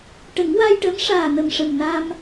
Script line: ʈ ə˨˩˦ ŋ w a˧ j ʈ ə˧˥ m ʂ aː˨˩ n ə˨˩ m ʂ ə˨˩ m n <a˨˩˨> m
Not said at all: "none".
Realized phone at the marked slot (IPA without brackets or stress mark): a˧